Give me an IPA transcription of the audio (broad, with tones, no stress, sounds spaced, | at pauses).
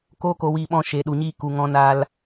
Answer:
k oː˦ k o˧ w iː˧ ɓ ɔ̃˧ ʃ eː˨ ɗ u˨ ɲ iː˧ k u˨ ŋ ɔ̃˧ n aː˧ l